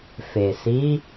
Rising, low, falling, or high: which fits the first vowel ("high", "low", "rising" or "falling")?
low